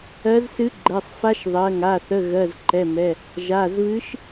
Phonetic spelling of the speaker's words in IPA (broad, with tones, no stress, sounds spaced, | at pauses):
ɜ˧˥ z s ɨ˧˥ ɡ͡ǃ ɛ˩˧˩ sˤ f a˧˥ ʃ ðˤ ɜ˩˧˩ ŋ a˩˧˩ θ ə˩˧˩ ɣ ɜ˩˧˩ z ǃ ɛ˩˧˩ m ɛ˩˧˩ | ʒ a˩˧˩ z β ɨ˧˥ ʃ